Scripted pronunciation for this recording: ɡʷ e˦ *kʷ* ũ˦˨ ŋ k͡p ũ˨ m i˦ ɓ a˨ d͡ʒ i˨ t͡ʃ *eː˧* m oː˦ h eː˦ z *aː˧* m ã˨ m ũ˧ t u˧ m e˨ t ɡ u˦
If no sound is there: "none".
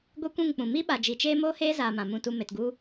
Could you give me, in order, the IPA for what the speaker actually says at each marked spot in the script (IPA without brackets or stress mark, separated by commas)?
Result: kʷ, eː˦, aː˨